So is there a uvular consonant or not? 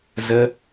no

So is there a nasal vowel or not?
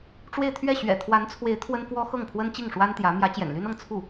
no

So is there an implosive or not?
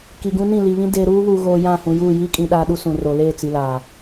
yes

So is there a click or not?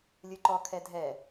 yes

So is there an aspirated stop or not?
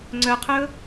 yes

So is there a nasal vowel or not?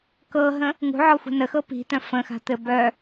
yes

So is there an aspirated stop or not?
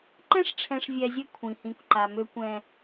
yes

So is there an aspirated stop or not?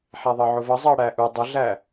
no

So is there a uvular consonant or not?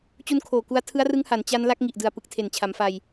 no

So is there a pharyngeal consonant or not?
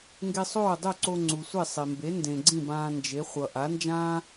no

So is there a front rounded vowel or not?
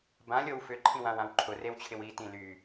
yes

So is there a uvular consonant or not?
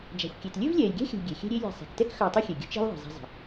no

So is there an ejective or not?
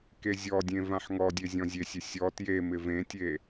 no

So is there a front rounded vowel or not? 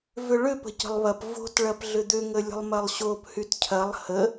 yes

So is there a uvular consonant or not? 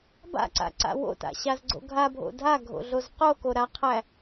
yes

